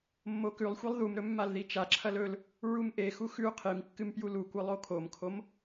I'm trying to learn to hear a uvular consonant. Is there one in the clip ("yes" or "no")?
yes